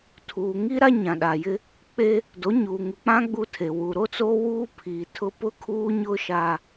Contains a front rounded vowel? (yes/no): no